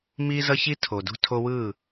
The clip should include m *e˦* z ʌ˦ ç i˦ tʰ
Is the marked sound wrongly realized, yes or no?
yes